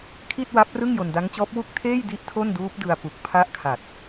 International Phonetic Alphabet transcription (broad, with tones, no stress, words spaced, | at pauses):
kʰi˥˩t̚wa˦˥p̚rɯ˥˩ŋ jo˧nda˦˥ŋt͡ɕɔː˦˥p̚ wu˥˩k̚ tʰeː˥˩jdi˦˥ʔ tʰo˥˩nduː˦˥p̚dɯ˧a̯pu˨˩k̚ pʰa˦˥ʔkʰa˨˩t̚